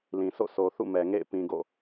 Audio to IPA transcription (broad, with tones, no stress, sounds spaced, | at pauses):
l ĩ˨ sʰ o̰˦˨ s o˨ θ ṵ˦˨ m ɛ˨ ŋ ḛ˦˨ ɪ̯ p ĩ˨ ɡ o̰˦˨